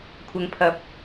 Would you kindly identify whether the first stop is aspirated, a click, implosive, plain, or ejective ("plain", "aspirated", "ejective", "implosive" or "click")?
aspirated